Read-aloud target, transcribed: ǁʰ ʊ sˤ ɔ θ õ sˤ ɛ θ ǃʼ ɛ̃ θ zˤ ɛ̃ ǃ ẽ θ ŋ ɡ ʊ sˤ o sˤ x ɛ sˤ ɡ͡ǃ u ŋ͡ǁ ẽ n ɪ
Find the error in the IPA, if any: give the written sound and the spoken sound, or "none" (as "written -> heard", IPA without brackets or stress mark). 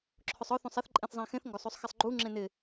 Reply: ǃ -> x